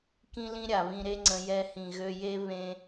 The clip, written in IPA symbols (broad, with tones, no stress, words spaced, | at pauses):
kĩ˦lĩ˦ ɾʲa˨βĩ˧ɾe˦ŋ͡ǀə̃˧ jɛ˧hĩ˨ ɣø˧je˦ βẽ˦